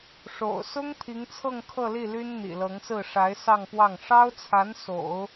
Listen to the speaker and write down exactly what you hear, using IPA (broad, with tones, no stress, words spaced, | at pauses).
ʂo̰˨˩ʊ̯ sʊ˥ŋ t̪ʰi˧˥ŋt͡sʰɤ˥˧ŋkʰɤ˥˧li˥˩ ly˥nn̪ḭ˨˩lɤ˧˥ŋsɹ̩˥˩ ʂa˧˥ɪ̯sɑ˥˧ŋpwɑ˥˩ŋ ʂɑ˥ʊ̯t͡sʰa˧˥n so̰˨˩˦ʊ̯